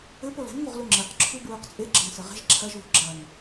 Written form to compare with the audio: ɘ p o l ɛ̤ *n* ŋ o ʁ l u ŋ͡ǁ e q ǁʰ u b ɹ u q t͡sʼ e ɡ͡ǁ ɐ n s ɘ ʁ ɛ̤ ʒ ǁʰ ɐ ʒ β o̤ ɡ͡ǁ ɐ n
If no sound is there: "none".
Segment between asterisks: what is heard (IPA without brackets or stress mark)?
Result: n